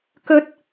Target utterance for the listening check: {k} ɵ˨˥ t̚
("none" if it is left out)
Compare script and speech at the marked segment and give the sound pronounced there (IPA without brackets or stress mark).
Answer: k